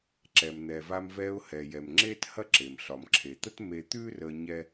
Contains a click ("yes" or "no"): yes